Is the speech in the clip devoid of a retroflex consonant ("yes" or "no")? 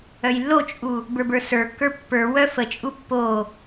yes